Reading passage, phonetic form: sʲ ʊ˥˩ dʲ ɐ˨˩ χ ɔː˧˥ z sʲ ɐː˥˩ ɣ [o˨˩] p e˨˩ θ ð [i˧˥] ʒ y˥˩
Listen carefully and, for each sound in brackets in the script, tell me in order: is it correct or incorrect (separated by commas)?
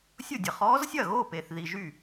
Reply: incorrect, incorrect